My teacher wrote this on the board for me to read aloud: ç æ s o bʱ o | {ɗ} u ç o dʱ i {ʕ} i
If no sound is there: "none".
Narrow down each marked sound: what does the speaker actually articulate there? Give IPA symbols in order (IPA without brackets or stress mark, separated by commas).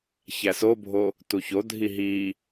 t, ɦ